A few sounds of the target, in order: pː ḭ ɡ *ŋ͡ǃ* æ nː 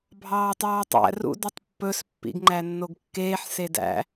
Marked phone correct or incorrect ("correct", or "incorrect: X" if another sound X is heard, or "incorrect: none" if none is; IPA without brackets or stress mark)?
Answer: correct